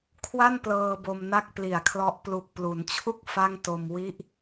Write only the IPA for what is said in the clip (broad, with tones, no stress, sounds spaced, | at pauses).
kʰ w a˥˩ n p l ɤː˧ b o˧ m n a˥˩ k̚ p l i˨˩ a̯ kʰ l ɔ˦˥ ʔ p l u˨˩ k̚ p l u˩˦ n t͡ɕʰ u˥˩ k̚ f a˥˩ ŋ t o˧ m w i˦˥ ʔ